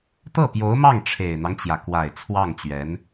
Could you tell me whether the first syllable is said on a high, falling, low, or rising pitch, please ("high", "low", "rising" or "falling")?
falling